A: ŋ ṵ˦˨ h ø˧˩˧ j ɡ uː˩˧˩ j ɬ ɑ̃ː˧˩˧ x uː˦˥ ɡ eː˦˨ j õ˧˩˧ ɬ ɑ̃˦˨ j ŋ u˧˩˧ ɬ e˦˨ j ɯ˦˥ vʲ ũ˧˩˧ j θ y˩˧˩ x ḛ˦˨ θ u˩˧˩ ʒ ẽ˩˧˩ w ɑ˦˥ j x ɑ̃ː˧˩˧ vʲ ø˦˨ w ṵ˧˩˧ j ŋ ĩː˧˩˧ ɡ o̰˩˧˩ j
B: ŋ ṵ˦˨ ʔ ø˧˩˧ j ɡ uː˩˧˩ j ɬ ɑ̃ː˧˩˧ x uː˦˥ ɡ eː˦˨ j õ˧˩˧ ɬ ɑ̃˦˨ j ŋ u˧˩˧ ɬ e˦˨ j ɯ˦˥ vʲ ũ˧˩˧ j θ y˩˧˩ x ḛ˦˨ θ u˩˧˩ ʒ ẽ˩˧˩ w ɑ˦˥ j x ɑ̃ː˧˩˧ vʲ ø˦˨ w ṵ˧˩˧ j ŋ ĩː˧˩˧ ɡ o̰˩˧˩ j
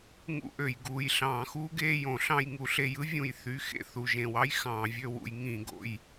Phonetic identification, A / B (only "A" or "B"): B